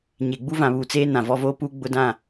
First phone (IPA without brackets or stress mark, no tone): ɲ